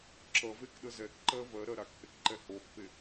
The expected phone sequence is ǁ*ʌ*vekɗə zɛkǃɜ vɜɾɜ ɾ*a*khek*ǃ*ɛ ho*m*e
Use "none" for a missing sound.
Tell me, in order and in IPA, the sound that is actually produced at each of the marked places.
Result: ʌ, a, ǃ, pː

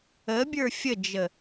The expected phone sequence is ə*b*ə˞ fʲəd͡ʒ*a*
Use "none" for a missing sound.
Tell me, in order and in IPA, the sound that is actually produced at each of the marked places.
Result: bʲ, ə

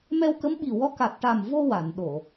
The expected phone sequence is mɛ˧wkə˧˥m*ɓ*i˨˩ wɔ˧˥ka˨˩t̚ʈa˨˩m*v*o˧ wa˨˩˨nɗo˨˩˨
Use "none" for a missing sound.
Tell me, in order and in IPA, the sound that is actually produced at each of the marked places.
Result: ɓ, v

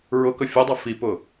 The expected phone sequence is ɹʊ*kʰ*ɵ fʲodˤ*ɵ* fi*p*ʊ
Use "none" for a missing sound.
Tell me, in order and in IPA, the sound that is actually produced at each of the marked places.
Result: k, ʊ, p

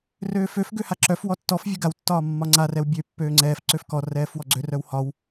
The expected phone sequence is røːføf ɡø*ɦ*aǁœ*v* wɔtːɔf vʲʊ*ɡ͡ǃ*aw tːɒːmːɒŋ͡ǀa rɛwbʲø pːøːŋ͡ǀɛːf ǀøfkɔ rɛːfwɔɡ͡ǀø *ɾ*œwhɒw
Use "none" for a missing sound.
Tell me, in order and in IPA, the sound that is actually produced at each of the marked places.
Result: h, f, ɡ, r

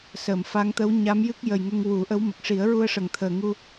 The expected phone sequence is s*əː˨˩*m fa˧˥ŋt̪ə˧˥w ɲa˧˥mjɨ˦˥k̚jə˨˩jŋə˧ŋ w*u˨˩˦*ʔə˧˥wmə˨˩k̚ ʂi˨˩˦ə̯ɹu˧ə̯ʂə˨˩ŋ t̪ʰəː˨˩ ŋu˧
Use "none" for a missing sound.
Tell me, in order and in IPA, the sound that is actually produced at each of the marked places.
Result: əː˨˩˨, u˨˩˦

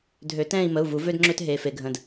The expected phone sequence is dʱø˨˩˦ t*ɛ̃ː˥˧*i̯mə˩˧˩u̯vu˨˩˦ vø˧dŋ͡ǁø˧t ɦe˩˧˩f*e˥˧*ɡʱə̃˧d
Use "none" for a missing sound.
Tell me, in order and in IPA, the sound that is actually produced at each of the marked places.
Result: ɛ̃ː˥˧, e˧

